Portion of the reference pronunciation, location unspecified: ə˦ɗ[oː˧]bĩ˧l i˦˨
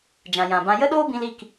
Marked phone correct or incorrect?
incorrect